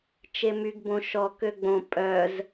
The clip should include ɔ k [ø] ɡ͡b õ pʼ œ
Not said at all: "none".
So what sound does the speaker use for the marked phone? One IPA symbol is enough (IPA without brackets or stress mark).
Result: ø